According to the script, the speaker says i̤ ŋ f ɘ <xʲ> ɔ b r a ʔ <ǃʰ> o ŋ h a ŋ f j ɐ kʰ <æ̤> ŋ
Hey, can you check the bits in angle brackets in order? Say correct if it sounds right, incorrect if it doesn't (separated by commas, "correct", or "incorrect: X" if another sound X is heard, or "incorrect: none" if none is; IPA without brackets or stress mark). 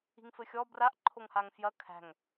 correct, correct, correct